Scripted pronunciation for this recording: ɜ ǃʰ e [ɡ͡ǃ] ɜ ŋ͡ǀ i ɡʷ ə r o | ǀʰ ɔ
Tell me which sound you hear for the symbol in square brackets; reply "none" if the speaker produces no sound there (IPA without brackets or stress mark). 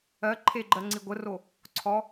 ɡ͡ǃ